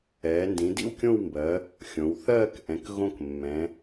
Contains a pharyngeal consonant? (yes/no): no